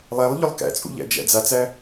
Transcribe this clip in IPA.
lˠ æ lˠ ʎ ʊ lˠ k æ̰ t͡sʼ ṵ ʎ æ̰ d͡ʒ æ̰ d͡z a t͡s æ

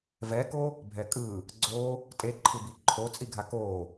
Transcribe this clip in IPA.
v ɛ k o | bʱ ɛ kʼ ɯ | ɡ͡ǀ o | tʼ e ǃʰ ɯ b i ǃʰ o t͡sʼ i ɡʱ a k o

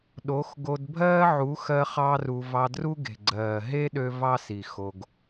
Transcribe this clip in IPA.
ɗ o˨˦ x ɡ o˧ d bʱ ɜː˦ ʕ u˨˦ x ɜ˧ χ ɑ˦ r u˧ v ɑ˧ d r u˦ ɡ e̤˨ ɡ͡ǀ ɜː˨ ɦ e˦ ɗ ø˧ v ɑ˦ s i˨ x o˧ ɡ

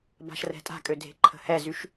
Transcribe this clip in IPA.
b a̤ ʃ r ɛ̤ tʼ a̤ kʼ ø dʱ e̤ ǃʰ ə̤ h ɛ z y ʃ

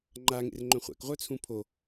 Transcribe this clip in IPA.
ŋ͡ǃ a ŋ ḛ r ŋ͡ǃ œ̃ χʷ æ̰ k ʁʷ œ t͡sʰ ũ pʰ o

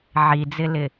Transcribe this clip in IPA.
ʕ i d͡z ɪ l ɪ

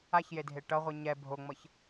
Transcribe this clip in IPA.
a ç j e dʱ e ʈ ʌ ʁʷ i ɲ ɛ bʱ o ŋ͡m ʌ ç

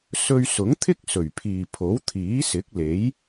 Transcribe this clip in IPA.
s ɵ˧ ɥ s ʊ˨˥ ŋ t̪ʰ ɪ˥ k̚ s ɵ˨˩ ɥ pʰ iː˨ pʰ o˨˥ w t̪ʰ iː˨˥ s ɪ˨˥ k̚ l e˨˥ j

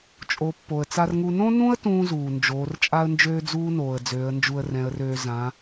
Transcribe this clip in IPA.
t͡ʃʼ o˩˧ pː o˩ ə̯ t͡s a˧ r ŋ u˧ n õ˥ n ũ˥ ə̯ t ũː˥ z uː˩ n d͡ʒ oː˩˧ r t͡ʃʼ a˥ ə̯ n d͡ʒ øː˥ d͡z uː˥ n oː˩ ə̯ d͡z øː˩˧ ə̯ n d͡ʒ u˧ ə̯ r ɛ̃˩˧ ə̯ r øː˧ z ã˩˧

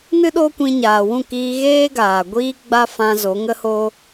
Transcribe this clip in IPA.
n ɨ˦ ɗ oː˦ kʷ ĩ˧ ɲ aː˨ w ũ˦˨ k iː˧ ɣ eː˦ ɡ aː˨ ɡʷ iː˦ ɡ͡b a˦ f ã˧ z o˨˦ ŋ ə˦ h o˦

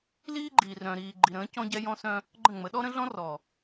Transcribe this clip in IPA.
l iː˦ ɡ͡ǃ iː˨ r œ̃˨ ɾ iː˨ ɡ͡ǃ i˨ ɾ ə̃ː˨˦ c ɔ̃˦ ɟ ɛ˦ j ɔ̃˦ s œ̃˦ | ɡ͡ǃ ə̃˦˨ ŋ͡m ə˨˦ ɗ ɔ˦ ɾ ə̃˦ ɮ ɔ̃˦ r ɔ˨

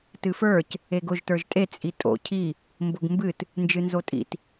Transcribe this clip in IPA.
t ɨ f ə˞ c | e ɡ ʊ ʒ t ə˞ ʒ tʼ e t͡sʼ i tʼ o̰ cʰ i | m b ʊ ɡ m b ɨ t | n d͡ʒ ɨ n z o tʼ ḭ t

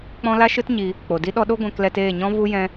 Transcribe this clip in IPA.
k͡p ɔ̃˦ l a˦ ʃ ɨ˦ t ɲ i˧ | k͡p o˨ d i˦ ɗ ɔ˦ ɗ o˦ ɡʷ ɛ̃˧ k l ɛ˧ t eː˦˨ ɲ ɔ̃˦ v u˦ j ɛ̃˦

